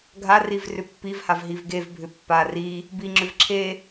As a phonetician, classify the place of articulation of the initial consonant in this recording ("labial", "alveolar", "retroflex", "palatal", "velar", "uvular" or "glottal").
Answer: velar